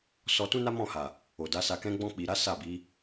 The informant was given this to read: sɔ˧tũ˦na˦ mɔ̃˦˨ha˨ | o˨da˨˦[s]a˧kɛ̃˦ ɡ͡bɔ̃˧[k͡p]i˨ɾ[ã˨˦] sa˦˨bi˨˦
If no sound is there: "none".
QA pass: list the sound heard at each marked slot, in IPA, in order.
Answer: s, k͡p, a˨˦

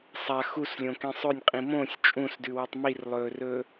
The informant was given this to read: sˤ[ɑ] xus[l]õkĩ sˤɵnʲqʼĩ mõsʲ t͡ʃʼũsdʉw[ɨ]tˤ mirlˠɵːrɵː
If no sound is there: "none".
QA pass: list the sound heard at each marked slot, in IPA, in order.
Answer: a, lʲ, ʉ

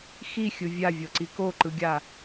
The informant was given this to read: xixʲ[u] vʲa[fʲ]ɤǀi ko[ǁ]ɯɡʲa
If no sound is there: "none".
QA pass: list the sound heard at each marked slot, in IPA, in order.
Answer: ɯ, vʲ, ǃ

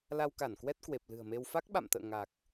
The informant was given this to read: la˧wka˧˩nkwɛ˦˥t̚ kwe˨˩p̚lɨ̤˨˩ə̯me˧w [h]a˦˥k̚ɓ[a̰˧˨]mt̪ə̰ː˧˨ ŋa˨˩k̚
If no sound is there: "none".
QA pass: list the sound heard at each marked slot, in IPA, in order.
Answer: f, a̰˧˨

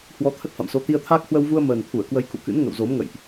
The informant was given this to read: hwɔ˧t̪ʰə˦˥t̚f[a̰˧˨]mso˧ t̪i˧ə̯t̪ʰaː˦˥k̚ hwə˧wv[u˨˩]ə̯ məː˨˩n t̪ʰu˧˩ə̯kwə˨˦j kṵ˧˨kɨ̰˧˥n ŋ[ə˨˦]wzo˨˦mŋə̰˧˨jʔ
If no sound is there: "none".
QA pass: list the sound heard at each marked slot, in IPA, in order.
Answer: a̰˧˨, u˧, ə̰˧˨

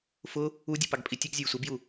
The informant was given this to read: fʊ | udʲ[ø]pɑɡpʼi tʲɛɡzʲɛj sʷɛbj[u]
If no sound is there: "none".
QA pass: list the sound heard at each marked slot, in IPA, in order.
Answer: u, u

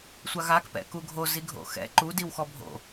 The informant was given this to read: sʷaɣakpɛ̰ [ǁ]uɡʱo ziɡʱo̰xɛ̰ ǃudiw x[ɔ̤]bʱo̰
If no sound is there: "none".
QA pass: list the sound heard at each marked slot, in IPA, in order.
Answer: k, ɔ

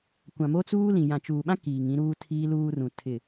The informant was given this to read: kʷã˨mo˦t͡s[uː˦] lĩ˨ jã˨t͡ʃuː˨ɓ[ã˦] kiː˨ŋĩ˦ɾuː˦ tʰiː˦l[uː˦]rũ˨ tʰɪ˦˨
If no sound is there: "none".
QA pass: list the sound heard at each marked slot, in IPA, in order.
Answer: uː˦, ã˦, uː˦

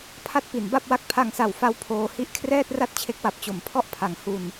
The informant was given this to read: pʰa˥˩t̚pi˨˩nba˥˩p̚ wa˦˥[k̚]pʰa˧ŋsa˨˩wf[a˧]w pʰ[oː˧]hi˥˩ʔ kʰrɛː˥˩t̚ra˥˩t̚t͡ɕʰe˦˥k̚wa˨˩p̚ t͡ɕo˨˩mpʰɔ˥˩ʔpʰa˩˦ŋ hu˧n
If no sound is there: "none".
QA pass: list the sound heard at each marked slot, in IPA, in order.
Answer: k̚, a˦˥, oː˧

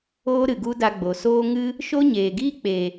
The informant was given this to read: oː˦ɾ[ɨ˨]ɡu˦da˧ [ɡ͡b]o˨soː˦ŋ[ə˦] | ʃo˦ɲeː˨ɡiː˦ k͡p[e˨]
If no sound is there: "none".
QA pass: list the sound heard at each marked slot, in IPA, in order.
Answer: ɨ˨, ɡ͡b, ɨ˦, e˨

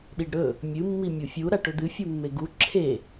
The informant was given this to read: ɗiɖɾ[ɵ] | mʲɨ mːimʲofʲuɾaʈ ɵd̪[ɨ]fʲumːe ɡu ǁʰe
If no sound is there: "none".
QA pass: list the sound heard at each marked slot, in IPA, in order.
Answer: ɵ, ɨ

